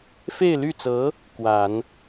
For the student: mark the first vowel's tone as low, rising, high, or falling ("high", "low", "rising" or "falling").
falling